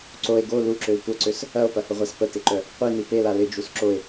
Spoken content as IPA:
ǀ o e̯ ɡ o l u ǁ ø l tʷ ɐ ǀ ø s | ɐ o̯ p ɐ h ʊ ʁʷ a s p ə t ɪ ǃ œ | qʷ i n i p e l a l ɪ d͡ʒ u s ǁ o e̯

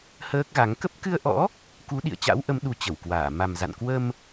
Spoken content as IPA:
h əː˦˥ k̚ ɣ a˨˦ ŋ k ə˦˥ p̚ k ɨ˧ ə̯ ʔ ɔ̰˧˥ | k u˨˦ ɗ ḭ˧˨ ə̯ t͡ɕ a̰˧˥ w ʔ ə˨˦ m ɗ u˨˦ t͡ɕ ə˧˩ w k w aː˧˩ m a˨˩ m z a̰˧˨ n k w ə˧ m

